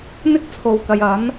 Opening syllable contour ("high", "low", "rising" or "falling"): high